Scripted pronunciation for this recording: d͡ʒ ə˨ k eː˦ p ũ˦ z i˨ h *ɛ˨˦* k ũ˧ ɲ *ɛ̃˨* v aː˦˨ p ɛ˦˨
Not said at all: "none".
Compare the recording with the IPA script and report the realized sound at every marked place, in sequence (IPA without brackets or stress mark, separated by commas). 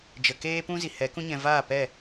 ɛ˨˦, ɛ̃˨